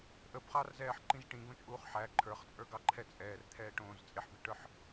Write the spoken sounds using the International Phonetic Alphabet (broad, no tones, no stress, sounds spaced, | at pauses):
ʔ ə b χ ɑ r z ɛː ħ ǃ ĩ z ʈ ĩ ɡ õ t͡ʃʼ uː χ ħ æ ǃʰ ə˞ χ t͡sʼ ə˞ ɡ ɑ ǃʰ ɛ t͡sʼ ɛː r t̪ʰ ɛː ʈ õː z t͡sʼ e ħ b i ʈ ə˞ ħ